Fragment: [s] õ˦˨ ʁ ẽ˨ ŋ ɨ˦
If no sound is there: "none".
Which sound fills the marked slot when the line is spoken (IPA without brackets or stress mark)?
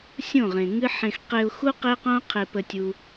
sʲ